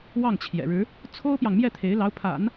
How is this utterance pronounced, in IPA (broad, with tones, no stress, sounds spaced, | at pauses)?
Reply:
w ɑ˥˩ ŋ t͡ɕʰ j ɛ̰˨˩ ɻ ɻ̩˧˥ | t͡sʰ o˥ ʊ̯ p j ɑ˨ ŋ m j ɛ˥˩ t̪ʰ e˧˥ ɪ̯ l ɑ˧˥ ʊ̯ pʰ a̰˨˩˦ n